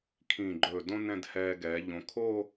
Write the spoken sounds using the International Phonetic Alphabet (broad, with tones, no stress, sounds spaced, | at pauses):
kʰ ĩː˧˩ ɡ͡ǃ ɵː˧˩ d õ˥ n ɛ̃˥˧ d h ɛː˧ ɡ ɛː˩˧ ʎ õ˩˧ kʰ oː˥˧